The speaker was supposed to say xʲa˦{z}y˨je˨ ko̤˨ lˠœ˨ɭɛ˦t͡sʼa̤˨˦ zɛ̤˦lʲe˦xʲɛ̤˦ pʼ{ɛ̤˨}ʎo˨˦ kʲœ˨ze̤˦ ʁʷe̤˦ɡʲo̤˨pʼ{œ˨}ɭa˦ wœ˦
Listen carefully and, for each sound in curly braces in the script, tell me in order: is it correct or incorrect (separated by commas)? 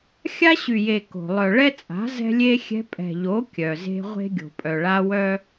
incorrect, correct, correct